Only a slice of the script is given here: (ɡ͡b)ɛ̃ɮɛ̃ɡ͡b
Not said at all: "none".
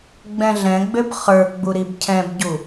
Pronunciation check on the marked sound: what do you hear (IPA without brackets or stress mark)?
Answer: ɡ͡b